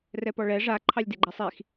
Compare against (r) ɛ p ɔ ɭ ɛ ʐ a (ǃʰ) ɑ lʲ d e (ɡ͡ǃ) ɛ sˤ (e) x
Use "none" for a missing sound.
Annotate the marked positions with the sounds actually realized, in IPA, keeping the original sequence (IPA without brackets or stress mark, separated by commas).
r, ǃʰ, ɡ͡ǃ, i